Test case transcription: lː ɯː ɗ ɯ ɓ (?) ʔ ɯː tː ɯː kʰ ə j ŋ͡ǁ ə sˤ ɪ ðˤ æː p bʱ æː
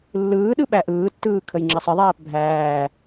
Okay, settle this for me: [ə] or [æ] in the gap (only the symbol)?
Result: æ